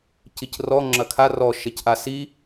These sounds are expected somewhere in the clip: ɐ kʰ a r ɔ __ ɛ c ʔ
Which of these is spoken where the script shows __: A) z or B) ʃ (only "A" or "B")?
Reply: B